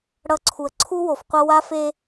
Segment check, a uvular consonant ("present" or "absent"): present